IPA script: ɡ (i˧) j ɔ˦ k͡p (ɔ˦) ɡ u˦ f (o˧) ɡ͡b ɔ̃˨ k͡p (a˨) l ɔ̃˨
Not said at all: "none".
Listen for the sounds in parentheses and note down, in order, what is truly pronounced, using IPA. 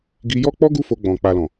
i˧, ɔ˦, o˧, a˨

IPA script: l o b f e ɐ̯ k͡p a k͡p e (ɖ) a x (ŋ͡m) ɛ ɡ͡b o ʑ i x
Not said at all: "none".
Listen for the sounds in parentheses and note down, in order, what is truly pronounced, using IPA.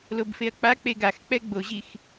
ɡ, k͡p

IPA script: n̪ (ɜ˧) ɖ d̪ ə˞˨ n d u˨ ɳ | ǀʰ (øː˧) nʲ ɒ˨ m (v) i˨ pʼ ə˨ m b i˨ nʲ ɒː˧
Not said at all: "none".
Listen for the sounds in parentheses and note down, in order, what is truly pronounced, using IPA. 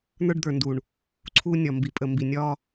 ə˞˧, uː˧, b

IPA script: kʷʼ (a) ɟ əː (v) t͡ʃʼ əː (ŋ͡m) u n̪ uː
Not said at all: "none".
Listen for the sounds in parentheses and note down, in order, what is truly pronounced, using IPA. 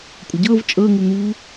ə, v, ŋ

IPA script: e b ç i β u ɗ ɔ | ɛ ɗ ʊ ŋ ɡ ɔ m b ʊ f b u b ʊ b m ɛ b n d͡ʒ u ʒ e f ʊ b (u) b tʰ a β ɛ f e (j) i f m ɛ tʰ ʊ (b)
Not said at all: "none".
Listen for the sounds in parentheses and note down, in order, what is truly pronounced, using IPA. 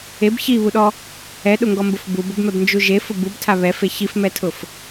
u, ç, f

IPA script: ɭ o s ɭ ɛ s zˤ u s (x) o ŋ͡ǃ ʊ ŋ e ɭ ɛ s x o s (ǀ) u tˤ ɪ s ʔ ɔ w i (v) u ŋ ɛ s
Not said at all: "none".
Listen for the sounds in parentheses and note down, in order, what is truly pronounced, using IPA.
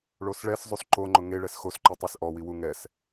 ǃ, ǃ, w

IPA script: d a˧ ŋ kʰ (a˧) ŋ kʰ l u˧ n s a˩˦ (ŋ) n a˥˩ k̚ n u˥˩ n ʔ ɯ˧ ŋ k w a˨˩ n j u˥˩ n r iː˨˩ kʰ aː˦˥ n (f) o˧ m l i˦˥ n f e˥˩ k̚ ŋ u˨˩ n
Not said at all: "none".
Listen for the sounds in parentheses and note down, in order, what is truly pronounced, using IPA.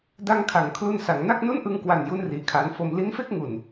a˩˦, ŋ, f

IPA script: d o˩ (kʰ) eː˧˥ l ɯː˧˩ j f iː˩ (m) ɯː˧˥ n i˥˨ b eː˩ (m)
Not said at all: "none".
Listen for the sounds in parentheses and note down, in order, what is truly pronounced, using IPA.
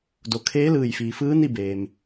kʰ, f, m

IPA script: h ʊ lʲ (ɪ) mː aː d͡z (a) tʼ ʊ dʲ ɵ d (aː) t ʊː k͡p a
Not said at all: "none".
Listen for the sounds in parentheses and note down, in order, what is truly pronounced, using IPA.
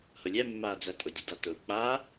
ɛ, æ, a

